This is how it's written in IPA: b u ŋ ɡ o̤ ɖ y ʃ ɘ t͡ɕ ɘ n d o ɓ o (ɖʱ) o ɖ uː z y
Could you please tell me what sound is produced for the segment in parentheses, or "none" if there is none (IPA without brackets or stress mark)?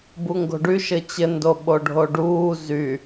ɖʱ